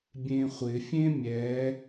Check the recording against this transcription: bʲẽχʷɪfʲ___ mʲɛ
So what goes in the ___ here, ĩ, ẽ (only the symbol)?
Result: ẽ